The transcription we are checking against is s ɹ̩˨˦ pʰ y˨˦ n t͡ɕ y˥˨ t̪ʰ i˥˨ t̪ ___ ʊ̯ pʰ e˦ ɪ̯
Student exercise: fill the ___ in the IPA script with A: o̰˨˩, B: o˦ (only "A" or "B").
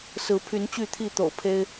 A